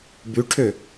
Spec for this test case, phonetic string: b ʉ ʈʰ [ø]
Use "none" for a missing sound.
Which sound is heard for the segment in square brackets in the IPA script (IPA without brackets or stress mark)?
ø